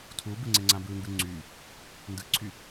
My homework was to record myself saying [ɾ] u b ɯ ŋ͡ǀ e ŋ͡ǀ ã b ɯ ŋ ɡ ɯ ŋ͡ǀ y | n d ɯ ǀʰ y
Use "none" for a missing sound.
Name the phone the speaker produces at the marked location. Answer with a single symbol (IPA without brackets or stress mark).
tʰ